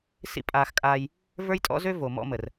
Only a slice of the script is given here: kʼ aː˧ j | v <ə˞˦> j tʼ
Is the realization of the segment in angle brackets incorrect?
no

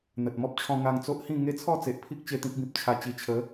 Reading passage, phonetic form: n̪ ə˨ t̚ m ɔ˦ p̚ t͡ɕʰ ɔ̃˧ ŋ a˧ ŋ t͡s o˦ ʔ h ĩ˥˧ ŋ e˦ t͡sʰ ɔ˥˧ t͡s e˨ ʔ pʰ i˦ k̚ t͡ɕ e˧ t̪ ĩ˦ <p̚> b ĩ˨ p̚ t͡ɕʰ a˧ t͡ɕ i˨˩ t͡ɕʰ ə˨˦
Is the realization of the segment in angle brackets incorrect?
yes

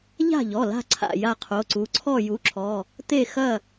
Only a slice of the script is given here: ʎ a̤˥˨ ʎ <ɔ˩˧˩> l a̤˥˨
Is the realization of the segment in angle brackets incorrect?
no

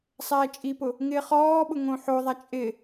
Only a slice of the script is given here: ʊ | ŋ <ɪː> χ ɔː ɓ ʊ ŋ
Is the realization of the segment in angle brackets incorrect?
no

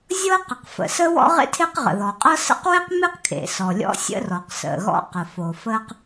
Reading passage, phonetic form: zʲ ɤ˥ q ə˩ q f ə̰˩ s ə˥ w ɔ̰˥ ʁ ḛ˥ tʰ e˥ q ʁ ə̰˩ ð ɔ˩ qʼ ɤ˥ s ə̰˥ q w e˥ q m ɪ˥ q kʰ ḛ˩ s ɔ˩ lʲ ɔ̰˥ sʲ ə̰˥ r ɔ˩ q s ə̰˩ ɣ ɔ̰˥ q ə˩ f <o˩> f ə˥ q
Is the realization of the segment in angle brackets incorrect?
no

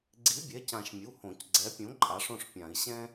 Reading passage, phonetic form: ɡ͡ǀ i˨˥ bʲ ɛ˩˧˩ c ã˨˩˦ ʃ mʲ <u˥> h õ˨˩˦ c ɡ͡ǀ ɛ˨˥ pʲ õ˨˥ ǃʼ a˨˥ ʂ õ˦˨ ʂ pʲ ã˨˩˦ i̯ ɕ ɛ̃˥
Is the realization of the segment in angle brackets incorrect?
yes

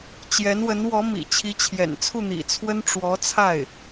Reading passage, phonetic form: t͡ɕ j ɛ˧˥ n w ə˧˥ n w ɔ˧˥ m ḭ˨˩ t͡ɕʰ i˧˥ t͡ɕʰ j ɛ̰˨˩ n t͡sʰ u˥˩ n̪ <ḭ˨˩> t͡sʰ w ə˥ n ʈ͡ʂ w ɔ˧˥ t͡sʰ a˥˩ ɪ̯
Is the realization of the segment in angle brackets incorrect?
no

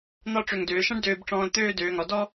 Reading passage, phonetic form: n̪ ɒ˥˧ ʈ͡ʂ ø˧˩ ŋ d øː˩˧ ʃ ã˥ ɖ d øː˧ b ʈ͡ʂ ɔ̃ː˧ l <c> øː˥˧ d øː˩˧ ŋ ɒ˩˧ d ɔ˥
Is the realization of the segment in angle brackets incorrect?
yes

